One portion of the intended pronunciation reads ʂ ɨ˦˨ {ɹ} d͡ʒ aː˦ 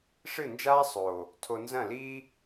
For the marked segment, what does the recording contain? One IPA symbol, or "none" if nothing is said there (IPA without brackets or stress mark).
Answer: n